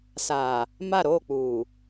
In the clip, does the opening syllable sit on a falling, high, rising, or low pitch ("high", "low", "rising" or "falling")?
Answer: low